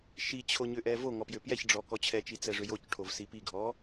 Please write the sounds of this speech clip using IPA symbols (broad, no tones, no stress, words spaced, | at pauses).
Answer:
ʃit͡ɕʰo ɲʏʔɛvoŋɔ pjʏpjɛçɖ͡ʐɔ kɔt͡ɕʰɛt͡ʃi t͡sɛʐʏjocʈʰov sipiɡʱɔ